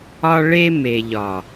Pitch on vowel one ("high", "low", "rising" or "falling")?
high